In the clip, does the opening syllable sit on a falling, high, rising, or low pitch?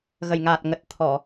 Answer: low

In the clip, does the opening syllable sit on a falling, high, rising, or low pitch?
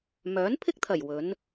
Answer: rising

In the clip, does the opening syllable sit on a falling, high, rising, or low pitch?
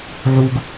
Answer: low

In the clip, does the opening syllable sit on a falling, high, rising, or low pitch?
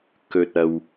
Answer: low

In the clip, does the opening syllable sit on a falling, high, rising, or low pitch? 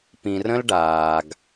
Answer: low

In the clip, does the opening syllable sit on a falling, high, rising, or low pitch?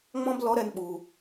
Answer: high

